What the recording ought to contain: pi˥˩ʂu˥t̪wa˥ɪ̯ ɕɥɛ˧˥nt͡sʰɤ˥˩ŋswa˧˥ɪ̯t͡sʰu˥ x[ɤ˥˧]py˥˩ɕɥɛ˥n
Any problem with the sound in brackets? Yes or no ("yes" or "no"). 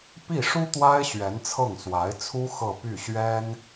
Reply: no